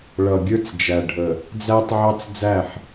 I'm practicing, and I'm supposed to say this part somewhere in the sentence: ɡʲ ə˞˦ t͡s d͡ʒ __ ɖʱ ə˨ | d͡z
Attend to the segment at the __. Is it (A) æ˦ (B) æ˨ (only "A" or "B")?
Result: B